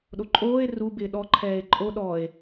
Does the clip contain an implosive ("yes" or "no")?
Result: yes